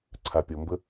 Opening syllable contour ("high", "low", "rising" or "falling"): low